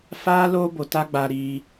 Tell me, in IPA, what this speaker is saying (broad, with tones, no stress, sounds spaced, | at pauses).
f aː˦ l oː˦ b o˨ t a˦ ɡ͡b aː˧ ɾ iː˧